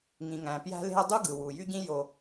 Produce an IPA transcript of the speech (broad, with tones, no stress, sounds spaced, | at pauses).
ŋ ĩ˩ ŋ æ̃˩ p j æ̤˦ l e̤˦ ɐ̯ dˤ u˥ ɡ ɯ˩ w u˩ j y˥ ɟ ĩ˥ j o˨